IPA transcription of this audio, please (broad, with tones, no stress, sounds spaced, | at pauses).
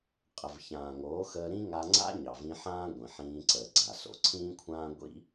qʼ ə˨ v ç ãː˨ ŋ oː˨˦ x əː˧ ɾ ĩ˦ ŋ a˧ ŋ͡ǀ a̰˦ ɲ ɑ˨ v ĩ˧ ħ ãː˦ ɡʷ ĩ˨ ħ ĩː˧ ǀ əː˨ ɡ͡ǀ a˨ s o̰˨ ǀʰ ĩː˦ kʷʰ ãː˦ ɡʷ ḭ˦